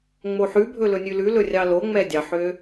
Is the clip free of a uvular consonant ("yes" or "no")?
yes